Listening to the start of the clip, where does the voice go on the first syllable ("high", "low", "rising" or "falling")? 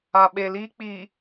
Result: low